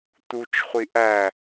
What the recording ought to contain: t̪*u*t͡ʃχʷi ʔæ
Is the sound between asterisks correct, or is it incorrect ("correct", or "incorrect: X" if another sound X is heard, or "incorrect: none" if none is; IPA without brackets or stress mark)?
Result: correct